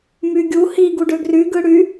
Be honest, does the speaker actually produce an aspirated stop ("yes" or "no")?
no